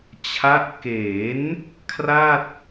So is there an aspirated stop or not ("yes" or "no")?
yes